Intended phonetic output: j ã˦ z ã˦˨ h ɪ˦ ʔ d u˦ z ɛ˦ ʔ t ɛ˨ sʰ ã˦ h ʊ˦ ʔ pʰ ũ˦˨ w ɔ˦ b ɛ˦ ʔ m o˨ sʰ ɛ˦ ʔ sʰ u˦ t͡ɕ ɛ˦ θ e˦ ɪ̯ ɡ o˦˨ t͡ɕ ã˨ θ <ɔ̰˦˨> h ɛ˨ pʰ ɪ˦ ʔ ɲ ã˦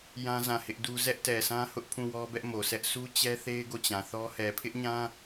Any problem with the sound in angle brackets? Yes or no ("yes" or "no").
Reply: yes